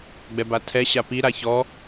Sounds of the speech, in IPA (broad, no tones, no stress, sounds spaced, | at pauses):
ɡ͡b ɛ b a tʰ ɛ ɕ a p i ɾ a ç ɔ